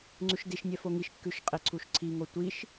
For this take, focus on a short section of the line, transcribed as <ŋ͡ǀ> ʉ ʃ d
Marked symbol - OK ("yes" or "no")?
yes